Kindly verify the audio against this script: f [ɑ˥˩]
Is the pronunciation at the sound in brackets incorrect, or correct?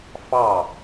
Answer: correct